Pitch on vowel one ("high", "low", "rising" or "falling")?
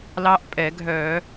rising